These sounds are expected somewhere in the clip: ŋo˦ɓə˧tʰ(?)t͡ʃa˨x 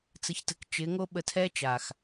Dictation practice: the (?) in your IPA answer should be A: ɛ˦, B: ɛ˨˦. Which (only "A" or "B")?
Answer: A